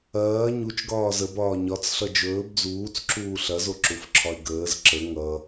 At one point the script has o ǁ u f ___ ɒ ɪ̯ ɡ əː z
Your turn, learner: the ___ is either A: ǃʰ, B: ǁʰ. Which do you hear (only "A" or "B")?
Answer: B